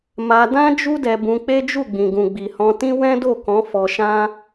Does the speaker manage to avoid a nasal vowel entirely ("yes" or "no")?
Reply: no